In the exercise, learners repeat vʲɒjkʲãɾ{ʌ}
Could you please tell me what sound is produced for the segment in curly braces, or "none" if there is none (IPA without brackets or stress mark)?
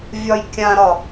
ɒ